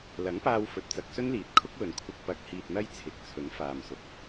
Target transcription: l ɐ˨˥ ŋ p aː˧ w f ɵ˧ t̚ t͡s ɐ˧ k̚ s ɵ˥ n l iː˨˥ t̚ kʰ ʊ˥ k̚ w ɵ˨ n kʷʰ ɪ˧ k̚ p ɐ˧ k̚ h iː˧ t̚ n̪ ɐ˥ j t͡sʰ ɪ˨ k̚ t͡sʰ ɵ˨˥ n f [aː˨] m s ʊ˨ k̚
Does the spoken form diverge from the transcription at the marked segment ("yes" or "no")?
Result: no